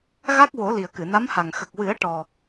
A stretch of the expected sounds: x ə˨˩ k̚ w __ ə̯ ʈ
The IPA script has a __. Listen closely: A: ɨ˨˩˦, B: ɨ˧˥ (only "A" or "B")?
A